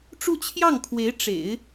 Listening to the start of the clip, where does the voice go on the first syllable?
falling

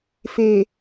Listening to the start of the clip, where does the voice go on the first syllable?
low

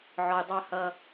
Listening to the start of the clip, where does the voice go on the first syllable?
low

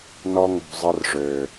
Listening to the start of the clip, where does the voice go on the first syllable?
high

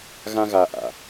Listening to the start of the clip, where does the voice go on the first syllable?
high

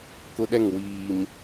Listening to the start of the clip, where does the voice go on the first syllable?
high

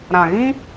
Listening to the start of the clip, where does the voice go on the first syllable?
low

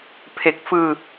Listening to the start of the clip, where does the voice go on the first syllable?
low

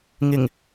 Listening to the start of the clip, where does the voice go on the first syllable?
low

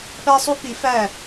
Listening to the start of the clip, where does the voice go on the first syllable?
high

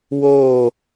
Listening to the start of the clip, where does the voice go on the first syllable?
falling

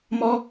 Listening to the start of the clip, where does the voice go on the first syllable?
high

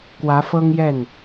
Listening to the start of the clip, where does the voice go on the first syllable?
rising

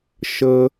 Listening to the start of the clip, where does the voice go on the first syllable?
high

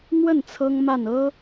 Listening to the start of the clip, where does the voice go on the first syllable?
falling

